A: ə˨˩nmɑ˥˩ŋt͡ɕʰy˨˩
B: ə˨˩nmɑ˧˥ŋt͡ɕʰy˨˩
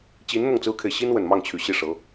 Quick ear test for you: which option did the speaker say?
A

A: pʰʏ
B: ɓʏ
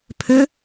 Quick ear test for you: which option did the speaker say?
A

